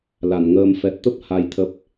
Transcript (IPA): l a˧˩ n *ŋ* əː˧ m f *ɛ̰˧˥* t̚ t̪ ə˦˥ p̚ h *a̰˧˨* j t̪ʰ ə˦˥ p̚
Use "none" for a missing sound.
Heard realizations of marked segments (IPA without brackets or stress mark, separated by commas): ŋ, ɛ˨˩, a˧